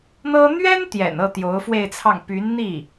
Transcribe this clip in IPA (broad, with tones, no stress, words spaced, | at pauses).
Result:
n̪ɤ˥ n̪ɥɛ˥n t̪jɛ̰˨˩nɤ˥˩ t̪jo˧˥ʊ̯fwe˥˧ɪ̯t͡sʰɑ˥˩ŋ py˧˥n n̪i˥˩